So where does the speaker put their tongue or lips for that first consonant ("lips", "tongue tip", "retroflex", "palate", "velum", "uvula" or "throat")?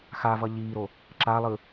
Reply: velum